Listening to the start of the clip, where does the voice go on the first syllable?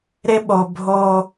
high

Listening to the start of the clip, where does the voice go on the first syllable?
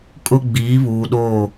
high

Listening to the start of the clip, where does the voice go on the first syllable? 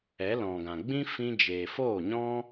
rising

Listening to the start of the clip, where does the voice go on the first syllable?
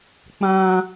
high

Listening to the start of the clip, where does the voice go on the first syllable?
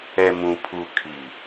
low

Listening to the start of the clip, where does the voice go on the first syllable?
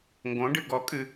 rising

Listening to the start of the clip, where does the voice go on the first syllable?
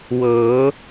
rising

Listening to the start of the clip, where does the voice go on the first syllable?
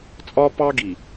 high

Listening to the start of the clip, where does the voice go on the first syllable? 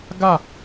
falling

